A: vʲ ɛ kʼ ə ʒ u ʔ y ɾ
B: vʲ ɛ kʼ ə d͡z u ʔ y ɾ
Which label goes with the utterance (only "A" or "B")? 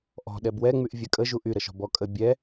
A